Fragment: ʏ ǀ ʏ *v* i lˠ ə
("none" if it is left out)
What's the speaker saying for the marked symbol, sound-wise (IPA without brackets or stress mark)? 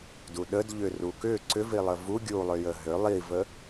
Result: v